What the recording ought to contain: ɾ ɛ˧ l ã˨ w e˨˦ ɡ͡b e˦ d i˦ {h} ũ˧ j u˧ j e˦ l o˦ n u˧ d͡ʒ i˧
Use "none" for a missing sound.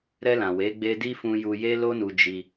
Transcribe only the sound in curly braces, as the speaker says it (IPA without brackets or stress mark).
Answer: f